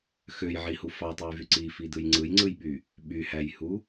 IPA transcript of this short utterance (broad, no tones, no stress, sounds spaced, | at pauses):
x ø j ʕ i h u f ɑ tˤ ɯ j v y ǀ i f i d ɯ j ŋ͡ǀ ɯ j ŋ͡ǀ ɯ j ɓ y | ɓ y h æ j h u